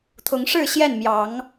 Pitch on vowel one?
rising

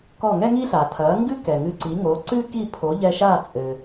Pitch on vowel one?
falling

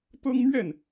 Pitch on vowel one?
high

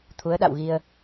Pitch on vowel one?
rising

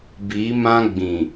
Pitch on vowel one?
rising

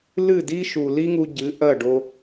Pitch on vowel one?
falling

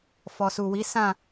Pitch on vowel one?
low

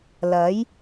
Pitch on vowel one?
rising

